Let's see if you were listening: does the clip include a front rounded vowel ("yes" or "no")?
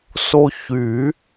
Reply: yes